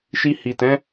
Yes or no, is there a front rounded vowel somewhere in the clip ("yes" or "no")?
no